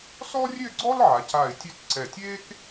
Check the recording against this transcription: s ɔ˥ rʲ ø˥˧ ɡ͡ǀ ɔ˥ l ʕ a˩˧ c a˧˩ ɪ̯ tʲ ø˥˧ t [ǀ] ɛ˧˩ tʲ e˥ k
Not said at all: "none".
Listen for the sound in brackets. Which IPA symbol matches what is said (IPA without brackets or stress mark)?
ǀ